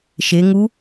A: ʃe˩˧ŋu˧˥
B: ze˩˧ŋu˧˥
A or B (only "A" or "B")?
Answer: A